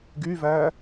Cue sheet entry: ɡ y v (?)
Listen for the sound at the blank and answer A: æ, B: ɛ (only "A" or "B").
A